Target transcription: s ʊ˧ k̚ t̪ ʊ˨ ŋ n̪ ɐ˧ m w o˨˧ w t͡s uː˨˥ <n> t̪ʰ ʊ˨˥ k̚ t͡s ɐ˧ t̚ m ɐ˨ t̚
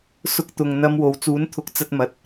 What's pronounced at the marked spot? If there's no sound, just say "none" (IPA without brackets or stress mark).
n